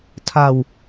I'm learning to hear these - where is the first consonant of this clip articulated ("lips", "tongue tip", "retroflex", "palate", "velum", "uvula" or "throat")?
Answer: tongue tip